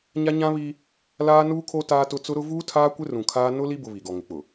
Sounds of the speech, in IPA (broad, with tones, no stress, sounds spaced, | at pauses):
ɲ a˦ ɲ ã˦ β i˦ | l aː˦ n uː˦ kʰ o˦ t aː˦ t ʊ˦ t͡s ʊ˦ ɾ ʊ˦ v uː˦ tʰ aː˦ kʷ ɪ˦ r ũ˨ kʰ aː˦ n ʊ˦ l i˦ b ʊ˨ β i˨ ɡ ɔ˨ ŋ ɪ˨˦ k͡p ʊ˨